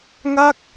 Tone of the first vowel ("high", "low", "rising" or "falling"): falling